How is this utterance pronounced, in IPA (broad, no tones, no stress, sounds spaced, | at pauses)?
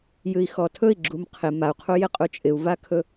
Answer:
j ɨ i̯ x ɔ tʰ ɵ i̯ ɡ͡ǁ u m qʰ ɪ m a u̯ qʰ u j ɪ qʼ u t͡ʃʼ ɪ u̯ v a kʰ ɵ